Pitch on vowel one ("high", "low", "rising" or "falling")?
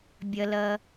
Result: low